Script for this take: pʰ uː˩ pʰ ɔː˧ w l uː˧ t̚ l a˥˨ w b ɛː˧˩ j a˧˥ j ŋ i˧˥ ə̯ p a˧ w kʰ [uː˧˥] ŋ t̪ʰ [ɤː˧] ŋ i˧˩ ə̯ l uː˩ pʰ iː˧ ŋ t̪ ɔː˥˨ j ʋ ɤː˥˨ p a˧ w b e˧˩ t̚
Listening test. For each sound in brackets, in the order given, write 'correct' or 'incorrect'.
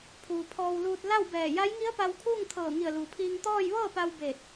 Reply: incorrect: uː˥˨, incorrect: ɤː˧˩

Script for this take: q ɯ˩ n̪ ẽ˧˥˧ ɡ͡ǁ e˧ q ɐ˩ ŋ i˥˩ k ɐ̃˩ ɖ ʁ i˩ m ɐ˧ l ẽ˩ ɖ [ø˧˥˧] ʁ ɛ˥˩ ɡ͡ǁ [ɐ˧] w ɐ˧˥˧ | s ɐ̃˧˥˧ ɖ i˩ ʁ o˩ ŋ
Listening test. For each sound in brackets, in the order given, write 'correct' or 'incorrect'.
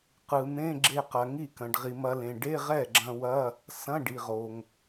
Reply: incorrect: e˧˥˧, incorrect: ɐ̃˧

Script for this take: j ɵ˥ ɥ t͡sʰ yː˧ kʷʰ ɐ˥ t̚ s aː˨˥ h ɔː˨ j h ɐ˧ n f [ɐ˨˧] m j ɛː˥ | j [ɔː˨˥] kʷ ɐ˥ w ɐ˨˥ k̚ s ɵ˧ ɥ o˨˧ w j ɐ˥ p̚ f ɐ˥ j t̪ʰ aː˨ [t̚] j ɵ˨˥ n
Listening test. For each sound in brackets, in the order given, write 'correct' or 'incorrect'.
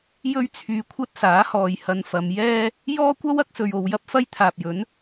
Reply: correct, incorrect: ɔː˥, incorrect: p̚

